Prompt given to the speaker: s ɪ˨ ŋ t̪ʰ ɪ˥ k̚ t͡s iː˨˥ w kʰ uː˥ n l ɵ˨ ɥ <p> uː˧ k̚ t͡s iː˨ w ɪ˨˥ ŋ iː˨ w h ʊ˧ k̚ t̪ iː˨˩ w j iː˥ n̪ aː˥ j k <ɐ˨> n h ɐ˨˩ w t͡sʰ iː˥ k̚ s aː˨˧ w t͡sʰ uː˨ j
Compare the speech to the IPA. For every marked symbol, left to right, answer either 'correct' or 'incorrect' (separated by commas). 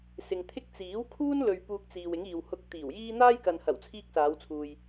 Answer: correct, correct